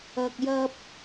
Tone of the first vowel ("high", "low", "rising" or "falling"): low